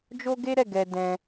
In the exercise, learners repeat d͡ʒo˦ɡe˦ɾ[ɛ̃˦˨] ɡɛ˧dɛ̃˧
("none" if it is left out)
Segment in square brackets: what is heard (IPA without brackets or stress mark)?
ɛ˦˨